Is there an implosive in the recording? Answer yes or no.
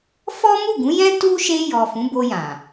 no